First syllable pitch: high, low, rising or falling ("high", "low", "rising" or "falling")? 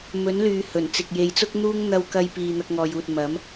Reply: rising